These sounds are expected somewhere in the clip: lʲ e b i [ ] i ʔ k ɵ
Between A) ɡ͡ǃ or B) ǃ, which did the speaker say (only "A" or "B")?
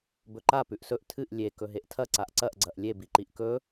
B